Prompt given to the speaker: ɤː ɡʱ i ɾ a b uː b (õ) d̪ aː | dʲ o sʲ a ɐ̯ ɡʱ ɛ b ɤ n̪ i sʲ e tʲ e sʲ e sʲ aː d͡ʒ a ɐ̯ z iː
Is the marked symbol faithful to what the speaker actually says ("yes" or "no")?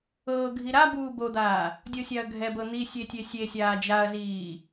no